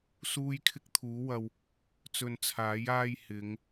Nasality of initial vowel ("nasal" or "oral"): oral